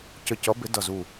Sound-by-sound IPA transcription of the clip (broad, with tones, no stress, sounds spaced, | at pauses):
c ə˧˩ c ʌ˨˥ b ɪ˨˥ d ʌ˧˩ z u˧˩